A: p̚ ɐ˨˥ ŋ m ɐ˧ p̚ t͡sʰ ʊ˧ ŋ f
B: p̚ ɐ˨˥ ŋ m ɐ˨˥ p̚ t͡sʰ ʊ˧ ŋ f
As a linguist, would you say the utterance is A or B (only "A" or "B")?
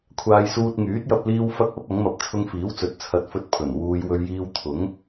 A